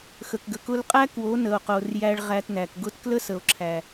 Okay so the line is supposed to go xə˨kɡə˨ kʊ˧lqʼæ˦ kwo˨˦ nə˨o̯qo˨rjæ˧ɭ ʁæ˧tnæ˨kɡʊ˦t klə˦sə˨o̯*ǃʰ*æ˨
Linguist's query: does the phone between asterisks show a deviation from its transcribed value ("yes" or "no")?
yes